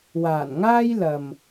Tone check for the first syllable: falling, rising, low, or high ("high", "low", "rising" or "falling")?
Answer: low